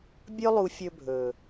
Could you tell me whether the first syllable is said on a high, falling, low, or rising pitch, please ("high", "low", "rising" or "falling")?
high